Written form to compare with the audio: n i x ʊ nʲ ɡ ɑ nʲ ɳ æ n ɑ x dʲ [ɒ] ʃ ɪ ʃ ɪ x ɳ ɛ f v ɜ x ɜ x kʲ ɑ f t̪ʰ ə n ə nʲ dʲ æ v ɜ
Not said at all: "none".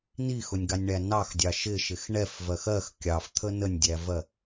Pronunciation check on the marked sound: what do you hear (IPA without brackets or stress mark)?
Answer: ɑ